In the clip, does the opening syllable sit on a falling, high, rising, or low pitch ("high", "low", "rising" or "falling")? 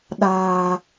low